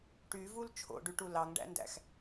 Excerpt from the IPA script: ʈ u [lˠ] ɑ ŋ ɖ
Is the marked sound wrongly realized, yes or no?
yes